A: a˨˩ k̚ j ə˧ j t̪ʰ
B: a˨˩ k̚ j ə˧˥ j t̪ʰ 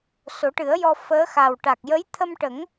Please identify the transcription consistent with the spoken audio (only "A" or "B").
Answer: B